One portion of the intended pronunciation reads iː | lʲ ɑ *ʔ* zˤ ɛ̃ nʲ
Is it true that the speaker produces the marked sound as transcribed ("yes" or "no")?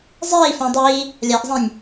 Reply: yes